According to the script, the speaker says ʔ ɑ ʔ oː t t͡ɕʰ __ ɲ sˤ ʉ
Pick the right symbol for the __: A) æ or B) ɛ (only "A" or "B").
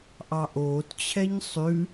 B